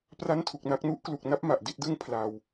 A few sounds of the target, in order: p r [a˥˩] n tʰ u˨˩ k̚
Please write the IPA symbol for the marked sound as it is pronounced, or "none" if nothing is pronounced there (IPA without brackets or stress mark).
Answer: a˥˩